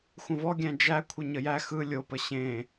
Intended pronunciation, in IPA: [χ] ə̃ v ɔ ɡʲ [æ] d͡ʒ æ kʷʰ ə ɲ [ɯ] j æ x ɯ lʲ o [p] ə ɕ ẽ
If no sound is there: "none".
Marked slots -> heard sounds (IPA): xʷ, æ̃, ə, p

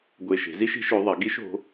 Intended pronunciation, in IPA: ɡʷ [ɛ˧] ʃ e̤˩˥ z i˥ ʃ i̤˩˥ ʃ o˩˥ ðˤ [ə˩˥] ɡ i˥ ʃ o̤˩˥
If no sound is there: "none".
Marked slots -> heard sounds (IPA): e˧, ɐ˩˥

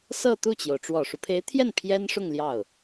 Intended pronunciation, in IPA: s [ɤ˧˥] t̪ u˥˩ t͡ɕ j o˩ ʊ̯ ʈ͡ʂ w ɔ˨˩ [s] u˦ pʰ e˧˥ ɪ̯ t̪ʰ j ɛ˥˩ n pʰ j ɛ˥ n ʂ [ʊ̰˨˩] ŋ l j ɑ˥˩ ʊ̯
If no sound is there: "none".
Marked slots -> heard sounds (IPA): ɤ˥˧, ʂ, ʊ˥˧

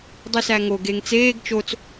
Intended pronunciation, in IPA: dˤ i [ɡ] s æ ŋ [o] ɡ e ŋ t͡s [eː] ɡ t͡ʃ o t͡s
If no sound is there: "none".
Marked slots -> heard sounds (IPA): none, o, eː

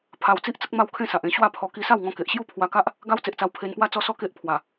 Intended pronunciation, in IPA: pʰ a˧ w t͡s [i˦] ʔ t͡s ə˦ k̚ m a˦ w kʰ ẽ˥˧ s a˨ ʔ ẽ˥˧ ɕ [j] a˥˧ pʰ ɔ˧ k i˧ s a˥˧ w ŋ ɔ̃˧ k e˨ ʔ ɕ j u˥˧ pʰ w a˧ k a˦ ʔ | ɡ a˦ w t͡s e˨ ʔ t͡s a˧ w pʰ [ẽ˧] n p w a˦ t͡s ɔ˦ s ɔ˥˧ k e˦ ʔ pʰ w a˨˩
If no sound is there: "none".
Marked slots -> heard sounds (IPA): i˦, w, e˧

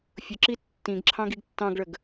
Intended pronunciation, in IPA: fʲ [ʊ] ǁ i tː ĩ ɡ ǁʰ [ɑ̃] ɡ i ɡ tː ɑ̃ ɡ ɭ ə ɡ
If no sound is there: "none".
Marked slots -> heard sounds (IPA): ʊ, ɑ̃

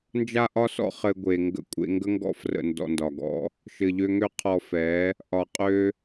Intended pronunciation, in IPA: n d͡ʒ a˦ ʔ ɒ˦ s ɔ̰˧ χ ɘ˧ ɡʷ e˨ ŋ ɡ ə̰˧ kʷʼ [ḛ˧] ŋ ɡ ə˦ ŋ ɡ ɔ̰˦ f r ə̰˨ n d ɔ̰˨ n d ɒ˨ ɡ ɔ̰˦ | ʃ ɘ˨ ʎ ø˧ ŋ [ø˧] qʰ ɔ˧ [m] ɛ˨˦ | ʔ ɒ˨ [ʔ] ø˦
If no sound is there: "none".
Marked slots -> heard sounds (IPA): ḛ˧, ø˦, f, qʼ

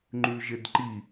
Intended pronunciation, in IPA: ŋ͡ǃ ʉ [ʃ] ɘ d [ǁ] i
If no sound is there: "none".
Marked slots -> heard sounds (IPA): ʒ, ǃ

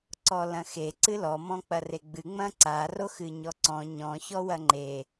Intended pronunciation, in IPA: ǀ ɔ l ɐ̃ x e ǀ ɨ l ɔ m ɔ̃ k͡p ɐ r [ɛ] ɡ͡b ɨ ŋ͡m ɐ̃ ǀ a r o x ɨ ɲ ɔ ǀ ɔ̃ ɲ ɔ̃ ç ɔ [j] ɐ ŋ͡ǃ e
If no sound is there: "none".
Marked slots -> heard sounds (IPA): e, w

